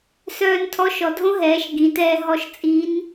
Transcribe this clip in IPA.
s œː˧ n tʰ ɔ˧˥ ʃ ɔ˩˧ dʱ õ˥ ɦ ɛː˩˧ ʃ ɡ ĩ˩˧ t ɛː˧ ɦ ɔ˧˥ ʃ t͡sʼ i˧˥ n

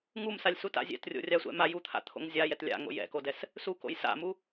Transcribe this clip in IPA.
ŋ u m s a lʲ s u t a̰ zʲ ɛ̰ t rʲ o̰ rʲ a sʷ ɛ̰ m a j u t̪ʰ a̰ t̪ʰ o̰ ŋ zʲ a j ɛ t lʲ a̰ ŋ o̰ j ɛ̰ k o d ɛ s | s u k o̰ j s a̰ m u

